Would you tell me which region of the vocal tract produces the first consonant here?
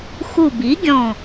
velum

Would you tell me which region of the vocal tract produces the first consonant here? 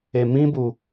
lips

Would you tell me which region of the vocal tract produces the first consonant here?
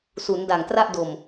tongue tip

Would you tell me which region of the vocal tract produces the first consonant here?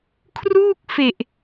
velum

